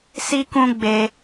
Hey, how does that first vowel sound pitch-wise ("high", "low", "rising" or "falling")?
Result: high